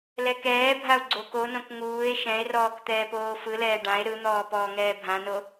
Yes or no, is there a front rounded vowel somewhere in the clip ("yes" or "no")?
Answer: no